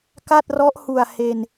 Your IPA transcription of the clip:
k a˥˩ t̚ r ɔ˦˥ ʔ h u˨˩ a̯ h e˧ n

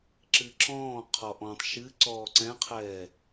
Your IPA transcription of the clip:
ǁ ɨ ǁ ɔ̃ː qʰ ɔ ʔ ɔ̃ tˤ ʃ ɨ ǀ ɔː ǀ ɛ̃ qʰ ɛː

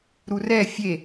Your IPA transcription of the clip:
ɾ u r ɛ fʲ e

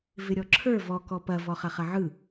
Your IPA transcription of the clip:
v ɪ ɾʲ ɔ ǁʰ ə˞ v ɔ k ɔ p ɐ v ɔ χ ɐ χ ɐ ʕ ɯ

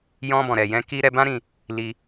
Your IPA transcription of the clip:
j ɔ̃˧ b ɔ̃˨ ɾ ɛ˨ j ɛ̃˧ k i˧ ɾ ɛ˧ b ã˦ ɾ ĩ˧ | l i˧

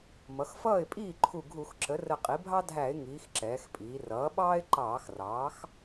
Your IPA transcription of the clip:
m ʌ˩˧ x f ʌː˥˩ ɪ̯ pʼ iː˥˩ ǃʰ u˧˩ ɡʱ u˧˩˧ x ǁ ə˩˥ r ə˧˩ qʼ i˩˥ bʱ ɑ˥ dʱ æ˧˩˧ ɪ̯ ŋ iː˩˧ x ǁ ɛː˩˧ x pʼ iː˩˧ r ʌː˩˥ ɓ ɑː˥ ɪ̯ ǃ ɑː˧˩˧ x r ɑː˩˥ x

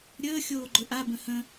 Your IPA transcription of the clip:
ɾʲ əː xʲ oː ɡ͡ǃ ɵ ʔ a b ə̃ h ə̃

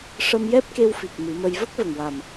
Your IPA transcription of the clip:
ʂ ə˧ m j ɛ˦˥ p̚ k e˧ w f i˨˩ k̚ m ɨ˨˩˦ m ə˧ j v ə˦˥ k̚ v ə˨˩ ŋ w a˨˩ m

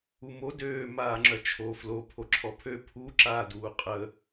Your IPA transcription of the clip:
u m o d øː m aː ŋ͡ǁ œ t͡ʃʰ o f l o pʰ o ǁʰ ɔ pʰ ø pʰ u ǁ aː d uː qʼ ə

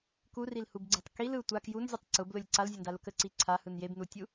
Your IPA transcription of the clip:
k u r i l h u b ɡ͡ǀ e tˤ k i l ɯ tʷ a k j u n zʲ ɯ tˤ ǀ ʊ b l ʊ lʲ ǀ a l zʲ ʊ n d a l ʊ k ə ǀ i ǀʰ a h ɯ n j e b n u tʲ u

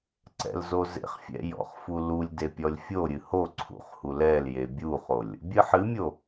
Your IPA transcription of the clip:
ǀ ɛ̰ l z o z ḛ χ fʲ ɛ̰ j ɔ̰ χ f u l u lʲ d e pʲ ɔ lʲ fʲ o ɾʲ ɨ h o ǀʰ ṵ χ h u l ɛ l j e bʲ u χ o lʲ | bʲ ɨ ħ ɨ mʲ o

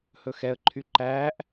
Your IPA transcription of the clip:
h ɵ x ɛ ə̯ ǃʰ y ǃ æː ʔ

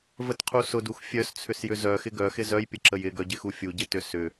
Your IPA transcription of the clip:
v ə t qʰ u s ʊ d u x fʲ œ s t͡sʰ ʏ s j ʏ z œ x ɪ ɡ œ x ɪ z œ j pʲ ə ǁ ə j ɪ ɡ œ ɟ ɪ x u fʲ u ɟ ɪ t ʏ s ʏ

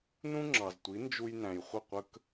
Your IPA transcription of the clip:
n ũ˥ ŋ͡ǁ ɑ˩ z tʷ i˩˥ n d͡ʒ u˧ j n æ̃˩ j χʷ ə˥˩ qʷ ə˥ k

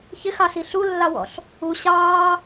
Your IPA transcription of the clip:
ç ɪ x ɑ s i ɬ u lː ɑ w ɔ̰ ɬ | u ɕ ɑː

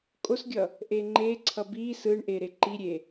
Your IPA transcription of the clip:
kʼ o s ɡʲ ʌ | ʔ e ŋ͡ǃ e ǀʰ ʌ b i s ɯ ɳ ʔ e ɾ e ǃ i ɾʲ e

